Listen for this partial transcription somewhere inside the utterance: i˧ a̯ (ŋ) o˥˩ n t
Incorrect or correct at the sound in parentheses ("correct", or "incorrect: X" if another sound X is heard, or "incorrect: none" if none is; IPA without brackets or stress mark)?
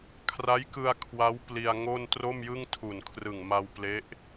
correct